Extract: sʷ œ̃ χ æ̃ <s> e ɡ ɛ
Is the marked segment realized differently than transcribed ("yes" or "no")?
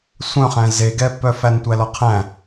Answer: yes